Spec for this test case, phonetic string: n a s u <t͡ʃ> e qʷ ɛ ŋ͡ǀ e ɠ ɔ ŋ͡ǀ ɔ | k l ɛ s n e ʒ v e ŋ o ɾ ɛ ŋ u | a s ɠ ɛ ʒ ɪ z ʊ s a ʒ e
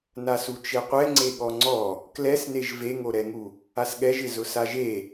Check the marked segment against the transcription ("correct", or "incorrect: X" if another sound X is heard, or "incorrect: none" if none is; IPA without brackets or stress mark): correct